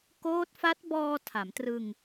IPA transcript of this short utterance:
koː˦˥t̚fa˦˥t̚bɔː˧ tʰa˩˦mtrɯ˧ŋ

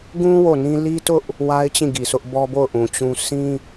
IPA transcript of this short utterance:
ɡũ˦ wo˦˨nĩ˦ li˦tʊ˦ʔ | wa˦ɪ̯ t͡ɕĩ˦˨ɡi˨sʊ˦ʔ bɔ˦bo˦˨ʊ̯ʔũ˨ t͡ɕũ˦ sĩ˦

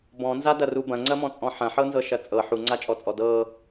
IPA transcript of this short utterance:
bɔ̃nzadɐru bɐ̃ŋ͡ǀɐmɔ̃t͡sʼɔ̃ ħɐ̃ħɤnzɤʃɐ t͡sʼɤ ħuŋ͡ǀat͡ʃʼɔt͡sʼɔ dɤ

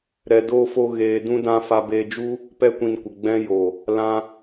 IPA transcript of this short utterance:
ɾɛ˧doː˦fo˦ ɣeː˧dũ˦dã˦ fa˧beː˧d͡ʒu˦ | pɛ˦kʷĩ˧nkʷə˨ ɡ͡bɛ̃˧jo˨ | lã˧

